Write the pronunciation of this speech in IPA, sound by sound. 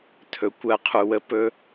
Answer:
tʰ ɵ˩ kʷ ɜ˨˩˦ qʰ u˩ w ə˨˦ p ɵ˨˦

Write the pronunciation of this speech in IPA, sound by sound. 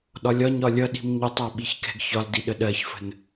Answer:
ɗ ɒ lʲ ɒ ɲ ɒ lʲ ʌ ɗ i̤ m ɲ ɪ tˤ ɜ ɓ i ç k ɛ̤ ɡ ç ɒ l d i ɗ ə ɗ ɜ ç f ə̤ n

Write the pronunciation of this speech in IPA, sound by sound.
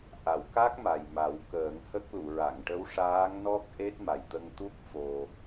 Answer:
ʔ a˨˩˨ w k a˦˥ k̚ m a˨˩ j m a˨˩˦ w k əː˨˩˦ ŋ h ə˦˥ k̚ l u˨˩˨ ɹ a˨˩˨ ŋ ʈ ə˧˥ w ʂ aː˧˥ ŋ n ɔ˦˥ k̚ ʔ e˦˥ t̚ m a˨˩ j t̪ ə˧ ŋ t̪ u˦˥ k̚ f o˧

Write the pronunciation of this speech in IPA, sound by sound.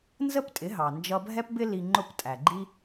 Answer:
n z ə˥ p tʼ ɪ˩˥ ɦ ɑ˩ n d͡ʒ ʌ˧ bʱ ɛ˥ p b ɪ˥ l i˧ ŋ͡ǃ ʊ˥˩ p tʼ æ˩ ɡ͡ǃ i˥

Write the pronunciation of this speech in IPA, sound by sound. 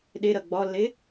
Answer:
ɗ e ɾ ɐ ɡ͡b ɒ lː e

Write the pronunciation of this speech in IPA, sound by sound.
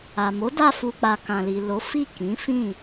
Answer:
a˨ m o˨˦ d a˧ f u˨ k͡p a˨ k ã˨ l i˨ l o˨˦ f i˦˨ k ĩ˨˦ f ĩ˦˨

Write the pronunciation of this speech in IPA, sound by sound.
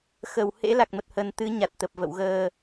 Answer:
x ə˧˩ w h ḛ˧˥ l a˨˩ k̚ m ə˨˩ t̚ h ə˨˩ n t̪ ɨ˨˦ ɲ a˨˩ t̚ t̪ ə˨˩ p̚ v ə̰˧˨ w ɣ əː˨˩

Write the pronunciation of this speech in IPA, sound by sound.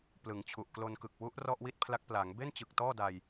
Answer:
p l ɯ˩˦ ŋ t͡ɕʰ u˨˩ ʔ k l o˧ n k ɯ˨˩ k̚ w u˦˥ ʔ r ɔ˥˩ ʔ w i˥˩ t̚ pʰ l a˦˥ k̚ p l a˩˦ ŋ b e˥˩ n t͡ɕ ɯ˨˩ k̚ t ɔː˥˩ d a˧ j

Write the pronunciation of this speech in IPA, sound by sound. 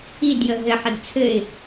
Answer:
i d j ə ɦ ɘ ħ ə d t͡sʰ ɘ ɪ̯

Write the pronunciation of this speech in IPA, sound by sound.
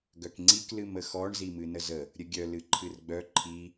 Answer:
ɡ œ k ŋ͡ǀ i k l ɨ m ə x ɔ ɳ z i m ɨ n ə z ə | ɾʲ ə ɡʲ œ l ɨ ǃʰ ɨ r ɡ͡b œ ǃʰ i

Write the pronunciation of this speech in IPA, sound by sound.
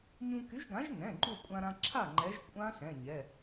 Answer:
ɲ ũ˧ k y˨˥ ʒ ɡ ã˨˥ ʒ n ɛ̃˩˧˩ ɡ͡ǃ u˥˩ kʷʼ ã˧ ɾ ã˧ ǁʰ a˥˩ ŋ͡ǃ ɛ˨˥ ʒ kʷʼ ã˦˥ ɬ ɛ̃˩˧˩ ɲ ɛ˩˧˩

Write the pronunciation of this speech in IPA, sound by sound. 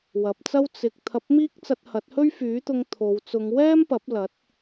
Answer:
w ɐ˨ p̚ t͡s ɐ˥ w t͡s ɪ˨ k̚ t̪ʰ ɐ˧ p̚ m iː˥ k̚ t͡s ɐ˧ t̚ h ɐ˨˥ t̚ h ɵ˥ ɥ f yː˨˥ t̪ ʊ˧ ŋ t̪ʰ o˨˧ w t͡s ʊ˨˧ ŋ w ɛː˥ m p ɐ˨˥ p̚ l ɐ˨˥ t̚

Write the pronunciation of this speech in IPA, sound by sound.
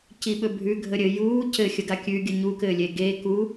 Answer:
c i ɓ ɵ bʱ ʉ ɡʱ ə ɾʲ ɘ j uː c ɘ xʲ ə ɡ a kʲ ʉ ɡʲ ə ɲ u k ɘː lʲ e ɡ eː k u

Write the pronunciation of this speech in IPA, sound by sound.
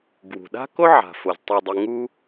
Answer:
ɡ w ṳ˩ ɗ a̤˥ k o˥ ʕ a̤˩ f o˩ z tˤ u˨ dˤ i˨ ŋ u˦

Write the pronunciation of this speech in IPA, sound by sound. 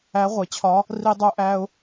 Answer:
æ˧˥ ʁʷ e˩˧ t͡ɕʰ ɒ˧˥ | r i˥ dˤ o˥ ʔ æ˥ ʊ̯

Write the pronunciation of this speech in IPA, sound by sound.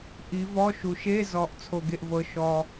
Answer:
ʔ i˨˦ v ɔ˧˥˧ ʃ u˨ ʃ e˧˥˧ z ɔ˨ ʔ t͡sʰ o˨ ɡ e˨ ʔ v ɤ˨ ʃ ɔ˨

